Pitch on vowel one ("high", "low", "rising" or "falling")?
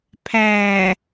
low